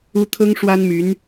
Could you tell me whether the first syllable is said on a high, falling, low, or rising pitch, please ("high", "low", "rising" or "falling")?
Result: high